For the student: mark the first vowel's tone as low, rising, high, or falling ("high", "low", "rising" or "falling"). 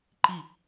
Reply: falling